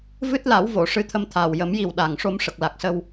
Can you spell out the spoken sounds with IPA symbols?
v ɨ˦˥ t̚ l a˨˩˦ w v o˨˩˨ ʂ ɨ˧˥ t̪ʰ ə˧ m t̪ʰ aː˨˩ w j ə˨˩˦ m j i˨˩ w ɗ a˨˩ ŋ ʂ o˧ m ʂ ə˨˩ k̚ l a˨˩ k̚ s ə˧ w

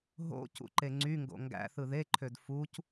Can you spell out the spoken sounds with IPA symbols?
ɦ o̰ c ṵ ǃ e ŋ͡ǀ y ŋ ɡ o̰ ŋ ɡ æ̰ θ ɯ ð e ǃʰ ø d f u c

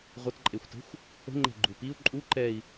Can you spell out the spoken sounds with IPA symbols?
ʁʷ ə t ǃʼ e xʷ t ə̤ xʷ | ə̤ ŋ͡ǃ ɛ̤ ɡ͡ǃ u p i u̯ ǃʼ u ǃ ɛ i̯

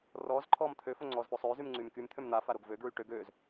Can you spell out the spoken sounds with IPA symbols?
r ɔː z ǃʰ ɔː m t̪ʰ ø f o ŋ͡ǀ ɔː z f o sˤ øː z y m ŋ͡ǀ yː m k y m t̪ʰ ø m n̪ a f a ɾ o ɡ v ø ɡ ɹ y ʈ ø ɡ øː z

